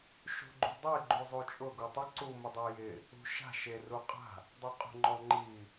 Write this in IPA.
ʃ ṳ ɡ͡ǃ ṳ dˤ e ɡ͡ǃ u zˤ u t͡ʃʼ ʊ ɡ u tˤ ʊ ǀ u m ʊ dˤ u j ɪ | ṳ ʃ a̤ ʃ e r u qʼ a̤ | dˤ ɛ qʼ ṳ ŋ͡ǃ ɔ ŋ͡ǃ i

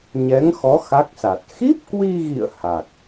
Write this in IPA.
ɲ ɛ˨˦ ŋ x ɔ˨˦ x a˦˥ k̚ s a˨˩ t̚ x i˦˥ p̚ k w i˧ ɣ ḭ˧˨ ə̯ h a˨˩ k̚

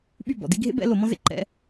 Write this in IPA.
ɓ y˥˩ b ɔ̰˨˩˦ d i˥ ɡʱ ḛ˥ b ɛ̰˥ l o˨˩˦ m ɔ̃˥ z ḛ˥ ǃ ɛ̰˧˥˧

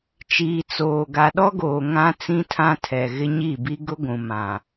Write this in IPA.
t͡ʃ iː˨ t͡s oː˨ ɡ a˨ ɗ ɔ˦ ɡ oː˨ ŋ ã˦ t͡s ĩ˦ tʰ ã˦ tʰ ɛ˨ ɣ ɪ˦ ɲ i˦˨ b i˦ ɡ ʊ˦ ɡʷ ũ˨ m ã˨

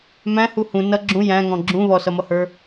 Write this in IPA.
m æ̃ h u h ũ n ʌ ɡ͡ǁ ũ j æ̃ ŋ ɔ̃ ɡ͡ǁ ũ β ɔ s ʌ m ʌ h ə˞

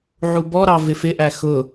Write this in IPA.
ʕ u b ɔ ɾ ɑ v ɪ f ɪ ʔ æ x ʊ

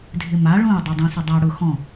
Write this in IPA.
dʱ ɪ m a ɭ ũ ɪ̯ dˤ ɛ dˤ ĩ s ʊ dˤ a ɽ ʊ x ɔ̃

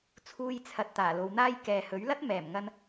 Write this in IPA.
t͡sʰ uː˧ j t͡sʰ ɐ˨ t̚ t̪ aː˨˩ l o˨˧ w n̪ aː˥ j k ɛː˨ h ɵ˨˥ ɥ l ɐ˥ t̚ m ɛː˨˩ m ŋ ɐ˧ n

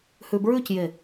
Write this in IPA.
h ʉ b ɹ ʉ c j e

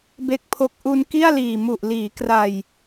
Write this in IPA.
b e˥˩ k̚ pʰ o˥˩ k̚ ʔ u˧ n k i˥˩ a̯ l iː˨˩ m u˨˩ ʔ l iː˩˦ k r a˨˩ j

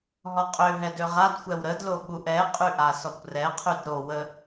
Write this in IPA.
ɦ ɔ qʼ ø ɦ ɛ d ø ʁ a d xʷ ɛ w ɾ ə d l o ɓ u ʔ ɛ qʼ y ʔ a s ɔ kʷ r ɛ qʰ y d ɾ o w ə

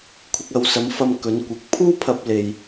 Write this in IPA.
kʷʰ ɪ˧ k̚ ɐ˨˧ w s ɐ˨˥ m f ɐ˧ m k ɵ˨˥ n kʷ ɪ˨˥ k̚ pʰ uː˥ pʰ ɐ˨ p̚ l e˨ j

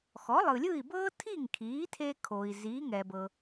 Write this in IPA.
x ɔ˩˥ lˠ ɯ˩ lʲ ɯ˥˩ i̯ b ɤː˥ tʰ i˥˩ ŋ kʰ iː˩˥ tʰ e˧ kʰ o˩ i̯ z iː˩˥ ŋ ɛ˩ b ɤ˩

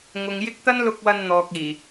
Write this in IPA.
ŋ ʊ˨ ŋ j ɪ˥ k̚ t̪ ɐ˥ n l ʊ˧ k̚ w ɐ˧ n n̪ ɔː˨ k̚ iː˨˩

